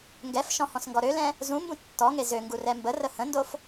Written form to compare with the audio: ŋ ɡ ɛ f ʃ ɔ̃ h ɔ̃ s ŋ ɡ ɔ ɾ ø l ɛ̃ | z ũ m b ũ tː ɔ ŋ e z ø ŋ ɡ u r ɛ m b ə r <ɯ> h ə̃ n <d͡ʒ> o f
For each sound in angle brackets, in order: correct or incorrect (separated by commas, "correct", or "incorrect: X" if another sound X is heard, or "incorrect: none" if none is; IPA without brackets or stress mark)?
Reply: incorrect: ə, incorrect: d